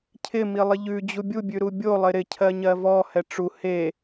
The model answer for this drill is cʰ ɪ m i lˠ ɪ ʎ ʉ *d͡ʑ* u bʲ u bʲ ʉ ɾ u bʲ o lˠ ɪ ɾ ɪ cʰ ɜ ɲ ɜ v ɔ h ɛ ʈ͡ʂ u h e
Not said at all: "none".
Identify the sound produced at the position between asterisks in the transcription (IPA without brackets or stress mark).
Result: d͡ʑ